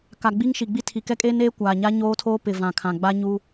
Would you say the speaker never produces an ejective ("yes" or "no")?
no